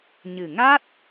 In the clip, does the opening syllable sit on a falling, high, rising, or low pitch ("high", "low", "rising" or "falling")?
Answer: low